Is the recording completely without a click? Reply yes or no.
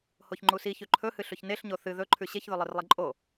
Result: no